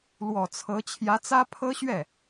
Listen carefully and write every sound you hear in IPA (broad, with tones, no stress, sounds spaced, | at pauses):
l w ɔ˨˩ t͡sʰ ɤ˧˥ t͡ɕʰ j ä˧˥ t͡s ä˥ pʰ ɤ˥ ɕ ɥ ɛ˥˩